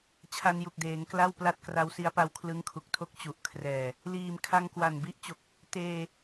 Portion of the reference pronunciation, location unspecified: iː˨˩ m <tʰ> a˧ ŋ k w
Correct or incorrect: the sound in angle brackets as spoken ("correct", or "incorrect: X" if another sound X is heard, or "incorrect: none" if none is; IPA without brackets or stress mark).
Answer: incorrect: kʰ